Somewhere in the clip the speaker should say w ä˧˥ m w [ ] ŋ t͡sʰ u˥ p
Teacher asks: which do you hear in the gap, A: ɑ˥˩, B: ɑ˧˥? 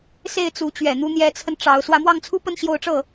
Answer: A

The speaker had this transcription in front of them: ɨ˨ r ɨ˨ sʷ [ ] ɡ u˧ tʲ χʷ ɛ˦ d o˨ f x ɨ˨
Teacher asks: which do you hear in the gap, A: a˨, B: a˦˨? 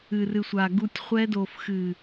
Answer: A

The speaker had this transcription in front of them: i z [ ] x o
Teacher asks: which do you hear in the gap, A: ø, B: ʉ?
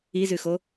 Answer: B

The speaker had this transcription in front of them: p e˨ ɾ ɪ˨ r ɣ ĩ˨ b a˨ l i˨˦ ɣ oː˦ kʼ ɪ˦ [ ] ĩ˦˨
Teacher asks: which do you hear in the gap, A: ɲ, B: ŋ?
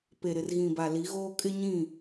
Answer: A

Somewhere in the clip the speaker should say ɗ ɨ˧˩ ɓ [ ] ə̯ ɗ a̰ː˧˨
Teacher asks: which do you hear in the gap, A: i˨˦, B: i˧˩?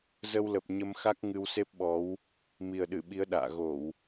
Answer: A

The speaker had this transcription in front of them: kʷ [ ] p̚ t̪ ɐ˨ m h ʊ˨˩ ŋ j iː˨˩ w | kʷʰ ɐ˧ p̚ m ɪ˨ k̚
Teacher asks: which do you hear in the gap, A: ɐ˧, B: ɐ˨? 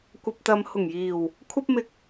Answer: B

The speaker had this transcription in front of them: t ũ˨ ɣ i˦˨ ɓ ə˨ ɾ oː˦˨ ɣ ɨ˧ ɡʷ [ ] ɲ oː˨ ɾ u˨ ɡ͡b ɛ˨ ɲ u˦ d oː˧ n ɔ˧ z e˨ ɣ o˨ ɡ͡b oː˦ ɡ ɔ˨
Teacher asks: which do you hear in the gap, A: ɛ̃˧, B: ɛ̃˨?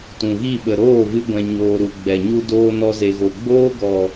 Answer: B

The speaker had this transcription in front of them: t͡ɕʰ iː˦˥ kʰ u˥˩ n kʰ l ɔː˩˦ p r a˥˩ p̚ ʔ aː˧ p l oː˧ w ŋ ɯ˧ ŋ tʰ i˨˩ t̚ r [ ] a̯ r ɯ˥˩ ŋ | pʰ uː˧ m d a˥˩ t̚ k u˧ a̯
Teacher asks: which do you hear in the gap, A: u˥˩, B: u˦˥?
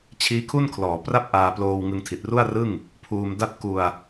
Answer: A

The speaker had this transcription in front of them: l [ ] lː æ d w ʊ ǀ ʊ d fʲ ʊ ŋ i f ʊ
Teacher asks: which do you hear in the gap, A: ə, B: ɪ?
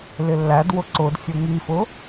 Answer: B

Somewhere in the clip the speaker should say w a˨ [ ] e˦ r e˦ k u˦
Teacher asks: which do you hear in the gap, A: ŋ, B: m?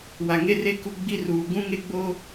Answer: A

